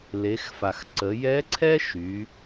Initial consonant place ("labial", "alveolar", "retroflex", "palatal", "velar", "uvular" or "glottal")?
alveolar